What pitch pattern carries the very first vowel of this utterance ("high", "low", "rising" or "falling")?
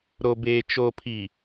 low